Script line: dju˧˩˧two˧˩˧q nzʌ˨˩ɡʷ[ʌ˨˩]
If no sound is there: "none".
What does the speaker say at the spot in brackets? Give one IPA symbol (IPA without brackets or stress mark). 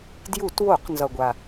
a˨˩